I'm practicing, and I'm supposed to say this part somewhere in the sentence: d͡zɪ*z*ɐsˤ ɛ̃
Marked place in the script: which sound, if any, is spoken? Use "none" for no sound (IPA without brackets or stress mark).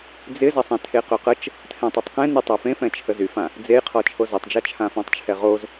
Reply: z